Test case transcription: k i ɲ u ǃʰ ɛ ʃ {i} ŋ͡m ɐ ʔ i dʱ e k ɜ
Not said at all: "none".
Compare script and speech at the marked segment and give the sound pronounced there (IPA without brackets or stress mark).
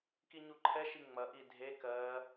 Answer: i